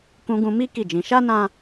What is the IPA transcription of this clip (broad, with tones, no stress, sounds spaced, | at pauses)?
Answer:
k ũ˧ ɡ ũ˧ m i˦ k i˦˨ d͡ʒ ĩ˨˦ ʃ a˦ n ã˦